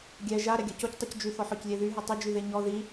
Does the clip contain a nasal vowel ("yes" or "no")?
no